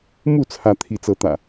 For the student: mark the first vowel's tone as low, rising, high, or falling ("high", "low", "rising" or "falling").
falling